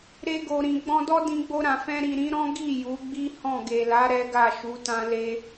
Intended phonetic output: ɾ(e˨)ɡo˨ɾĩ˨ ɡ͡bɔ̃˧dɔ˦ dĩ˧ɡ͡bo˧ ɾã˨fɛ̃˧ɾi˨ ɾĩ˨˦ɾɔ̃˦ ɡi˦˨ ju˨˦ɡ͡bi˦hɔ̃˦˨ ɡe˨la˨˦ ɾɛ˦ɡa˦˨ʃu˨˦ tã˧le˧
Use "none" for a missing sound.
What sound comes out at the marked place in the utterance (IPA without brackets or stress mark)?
e˧